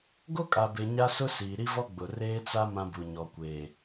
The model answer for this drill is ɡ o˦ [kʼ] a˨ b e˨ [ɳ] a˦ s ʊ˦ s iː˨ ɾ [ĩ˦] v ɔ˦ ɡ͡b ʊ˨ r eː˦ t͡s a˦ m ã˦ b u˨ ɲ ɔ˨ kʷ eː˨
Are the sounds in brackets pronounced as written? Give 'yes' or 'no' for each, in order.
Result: yes, no, no

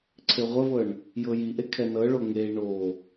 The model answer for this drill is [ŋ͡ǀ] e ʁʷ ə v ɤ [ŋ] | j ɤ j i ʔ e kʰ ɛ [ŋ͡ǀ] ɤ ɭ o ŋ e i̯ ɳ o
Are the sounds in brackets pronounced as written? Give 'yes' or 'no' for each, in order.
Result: no, no, no

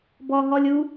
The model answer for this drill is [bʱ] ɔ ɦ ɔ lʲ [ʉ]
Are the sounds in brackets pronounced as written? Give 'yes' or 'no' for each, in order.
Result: no, no

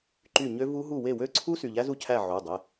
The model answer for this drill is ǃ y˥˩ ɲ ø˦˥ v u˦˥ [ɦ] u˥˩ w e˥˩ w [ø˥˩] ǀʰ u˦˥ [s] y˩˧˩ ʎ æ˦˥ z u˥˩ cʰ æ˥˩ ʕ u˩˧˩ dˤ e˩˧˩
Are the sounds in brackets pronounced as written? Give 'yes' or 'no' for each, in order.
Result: yes, yes, yes

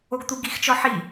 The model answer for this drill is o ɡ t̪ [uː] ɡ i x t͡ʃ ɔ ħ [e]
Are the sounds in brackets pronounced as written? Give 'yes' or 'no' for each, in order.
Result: no, no

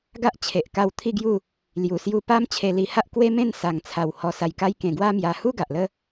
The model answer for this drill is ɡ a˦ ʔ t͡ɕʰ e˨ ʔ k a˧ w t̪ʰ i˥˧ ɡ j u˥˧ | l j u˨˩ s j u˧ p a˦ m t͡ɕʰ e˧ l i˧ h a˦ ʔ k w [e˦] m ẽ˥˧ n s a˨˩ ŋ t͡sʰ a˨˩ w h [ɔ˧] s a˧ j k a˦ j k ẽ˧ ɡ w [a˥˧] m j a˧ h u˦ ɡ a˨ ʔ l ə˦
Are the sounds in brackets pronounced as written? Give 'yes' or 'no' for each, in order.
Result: yes, yes, no

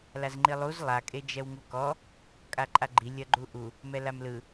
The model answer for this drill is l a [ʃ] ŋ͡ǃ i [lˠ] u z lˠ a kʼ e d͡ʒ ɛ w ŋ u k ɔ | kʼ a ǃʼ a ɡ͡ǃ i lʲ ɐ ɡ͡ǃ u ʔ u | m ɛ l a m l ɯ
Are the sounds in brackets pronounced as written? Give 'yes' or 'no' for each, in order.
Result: no, yes

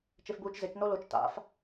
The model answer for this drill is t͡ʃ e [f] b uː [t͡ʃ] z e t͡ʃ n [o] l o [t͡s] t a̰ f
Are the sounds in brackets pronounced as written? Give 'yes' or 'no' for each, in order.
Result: yes, yes, yes, no

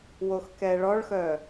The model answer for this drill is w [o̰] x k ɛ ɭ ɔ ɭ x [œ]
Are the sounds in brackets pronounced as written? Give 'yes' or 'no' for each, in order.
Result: no, yes

